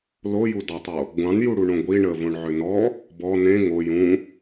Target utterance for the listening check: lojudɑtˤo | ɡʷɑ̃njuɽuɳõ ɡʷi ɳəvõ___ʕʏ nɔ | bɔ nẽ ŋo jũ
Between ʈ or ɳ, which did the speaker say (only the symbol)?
ɳ